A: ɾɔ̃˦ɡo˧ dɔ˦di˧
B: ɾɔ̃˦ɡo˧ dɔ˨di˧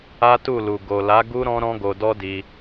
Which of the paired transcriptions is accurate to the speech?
A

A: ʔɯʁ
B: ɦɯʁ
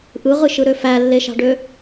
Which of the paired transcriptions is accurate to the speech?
A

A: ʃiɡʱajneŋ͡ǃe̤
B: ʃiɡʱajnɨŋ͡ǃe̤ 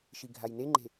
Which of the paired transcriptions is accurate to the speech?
A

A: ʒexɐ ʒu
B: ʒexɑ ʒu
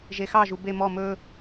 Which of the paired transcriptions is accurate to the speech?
B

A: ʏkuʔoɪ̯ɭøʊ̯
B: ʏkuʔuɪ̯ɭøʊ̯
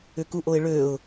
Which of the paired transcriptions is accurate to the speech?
A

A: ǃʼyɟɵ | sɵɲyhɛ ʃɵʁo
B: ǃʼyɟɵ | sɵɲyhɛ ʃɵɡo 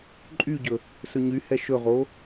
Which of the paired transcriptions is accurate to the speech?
A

